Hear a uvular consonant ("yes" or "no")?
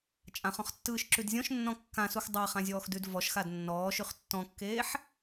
yes